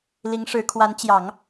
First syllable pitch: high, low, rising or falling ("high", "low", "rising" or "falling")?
rising